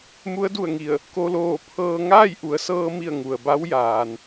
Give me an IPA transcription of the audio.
mu˧˥ə̯du˧˩ə̯ŋi˧˩ə̯ | ko˧loː˧˩pʰɤː˧ ŋaː˥˨jʔu˩˧ə̯sɤː˧mi˧˩ə̯ ŋu˩ə̯ba˧˥w jaː˩n

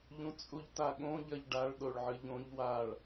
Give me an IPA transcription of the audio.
ʎũt͡sʼuʎtaɠõ ʎɐʎɖaɭ ɗoɭʕɨʎõʎ waɭ

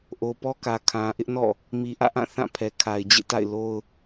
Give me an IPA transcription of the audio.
ʔo˨pɔ˦kä˨ kʰã˨ʔɪ˦ʔnɔ̰˦˨ | mi˨ʔä̰˦˨ʔã˦˨ θã˦˨pʰɛ˨kʰa˨ɪ̯ d͡ʑḛ˦˨ta̰˦˨ɪ̯ lo˦ʊ̯

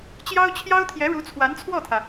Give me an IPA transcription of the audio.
t͡ɕjɑ˥ʊ̯t͡ɕʰjɑ˥ʊ̯t̪ʰjɛ˧˥ ɻu˧˥t͡sʰwa˧˥nt͡sʰwɔ˥˩t̪ʰä˩

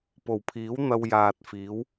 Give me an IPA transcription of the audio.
po˨˩wpʰiː˨˥wn̪ɐ˧wjaː˨t̚ fiː˨˥w

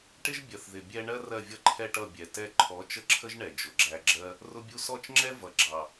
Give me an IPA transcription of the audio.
ʈɪ˦ʒ bʲɜ˨θðɪ˨ bʲɛ˧ɳɜ˦ rɜ˦˨vʲʌ˦ǃʰɛ˦ʈʌ˦˨ bʲɛ˨ tɛ˧ǃʰɔ˨˦ t͡ʃə˦ǁʰə˦ʒɳɛ˨ d͡ʒʊ˨ɡ͡ǁæ˧ɡ͡ǁɜ˦ | rʊ˧bʲu˧sɔ˦˨t͡ʃŋ͡ǁɛ˦ vʌ˨ɡ͡ǁɑ˨

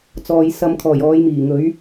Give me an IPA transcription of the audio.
t͡sɔː˨jsɐ˧m kʰɔː˨˩j ɔː˨˧jmiː˨˩ŋɵ˨˥ɥ

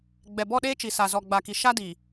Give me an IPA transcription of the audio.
ɡ͡bɛ˨bɔ˦˨ɗeː˦t͡ʃi˨ sa˨zɔ˨ɡ͡ba˨ki˨ ʃa˦di˨

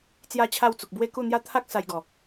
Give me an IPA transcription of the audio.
t͡sja˥˧t͡ɕʰa˥˧wt͡su˨k̚ bwe˦ku˥˧ n̪ja˦ t̪ʰa˦k̚ sa˧jɡɔ˨˩

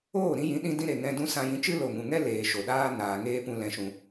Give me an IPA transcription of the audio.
oː˦˨ ɾĩ˦ jĩ˨˦ɗĩ˦dĩ˦ ɾe˨ŋɛ̃˧dũ˦ sã˧jĩ˧ t͡ʃɨ˦lo˨ŋũ˨ŋɛ˦ leː˨ ʃo˨ɗaː˦ naː˨ ŋeː˦pũ˧ lɛ̃˨ʃũ˨

